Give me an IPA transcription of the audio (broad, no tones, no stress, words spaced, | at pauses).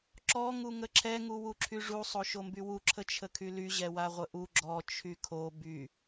ǁɔ ŋuŋəǁʰɛ ŋuwuǁʰyʐu sˤoʃombywu ǁʰət͡ʃʰəkʰyly ʑɛwaʁʷəʔu ɡ͡ǁɔ t͡ʃʰykʰo by